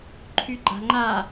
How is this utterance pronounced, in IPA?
ǃʰyɡ͡ǃa̤ŋ͡ǃa

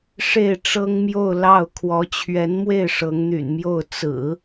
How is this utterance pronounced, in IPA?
ʂe˥˩ɪ̯ʈ͡ʂɤ˥ŋmjo˥˧ʊ̯ lɑ˥˩ʊ̯ kʰwɔ˧˥t͡ɕʰɥɛ˧˥nmwe˥˩ɪ̯ ʂɤ˧˥ŋn̪y̰˨˩nmjo˥˩ʊ̯ t͡sɹ̩˨˩˦

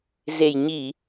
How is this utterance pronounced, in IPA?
ze˨˩jɲi˧˩˨

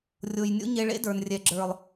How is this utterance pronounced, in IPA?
rʲo˨jnʲo̰˦ ɲe˧ɭḛ˦də˞˨nrʲɛ˨ ɡ͡ǁə˞˨lˠ

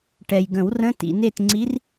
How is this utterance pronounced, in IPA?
ʈɛ˨jɡə̃˨˩˦wrə̃˧˥˧ tḭ˨ne˦˨tŋ͡ǀi˧˥r

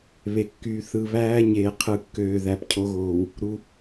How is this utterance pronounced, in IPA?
βe˨kːyː˨ θɯ˨βæː˦ ɲeː˨qʰɯ˨kːøː˨ ðæ˨pcʰo˦ɣoː˨w | ɾu˦

